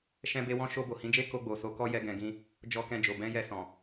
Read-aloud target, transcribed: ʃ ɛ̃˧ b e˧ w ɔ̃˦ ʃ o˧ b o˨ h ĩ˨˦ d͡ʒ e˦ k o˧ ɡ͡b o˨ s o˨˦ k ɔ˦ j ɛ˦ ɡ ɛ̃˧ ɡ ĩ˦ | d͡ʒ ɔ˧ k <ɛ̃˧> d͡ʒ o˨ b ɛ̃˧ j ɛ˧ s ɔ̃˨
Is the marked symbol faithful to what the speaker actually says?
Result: yes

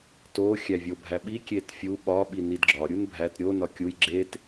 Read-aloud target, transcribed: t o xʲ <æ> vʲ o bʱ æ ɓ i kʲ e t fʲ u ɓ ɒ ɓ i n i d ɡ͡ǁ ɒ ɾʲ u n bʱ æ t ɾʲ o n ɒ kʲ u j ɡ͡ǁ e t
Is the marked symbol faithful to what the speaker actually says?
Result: yes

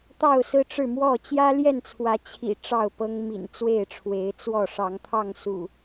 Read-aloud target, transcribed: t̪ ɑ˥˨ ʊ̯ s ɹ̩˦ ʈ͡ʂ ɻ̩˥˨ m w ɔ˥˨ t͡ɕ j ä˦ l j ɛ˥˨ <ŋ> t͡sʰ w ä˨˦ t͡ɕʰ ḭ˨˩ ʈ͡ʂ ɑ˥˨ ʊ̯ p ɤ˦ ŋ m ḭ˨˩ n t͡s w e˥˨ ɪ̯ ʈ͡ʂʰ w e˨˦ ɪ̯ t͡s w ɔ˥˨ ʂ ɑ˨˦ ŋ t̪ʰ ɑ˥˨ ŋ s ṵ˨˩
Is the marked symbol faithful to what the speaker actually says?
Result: no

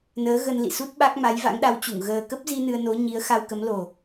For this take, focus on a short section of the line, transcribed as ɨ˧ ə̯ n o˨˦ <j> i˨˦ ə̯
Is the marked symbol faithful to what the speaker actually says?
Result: no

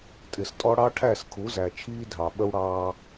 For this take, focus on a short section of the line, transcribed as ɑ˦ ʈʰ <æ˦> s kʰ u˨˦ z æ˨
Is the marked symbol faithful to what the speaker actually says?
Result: no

